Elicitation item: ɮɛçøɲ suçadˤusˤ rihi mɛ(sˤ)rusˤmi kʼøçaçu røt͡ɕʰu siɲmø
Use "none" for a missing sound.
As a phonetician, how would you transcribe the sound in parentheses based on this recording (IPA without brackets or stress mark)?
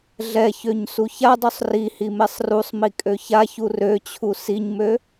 sˤ